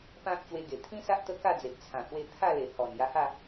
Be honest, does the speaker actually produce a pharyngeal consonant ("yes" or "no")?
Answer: no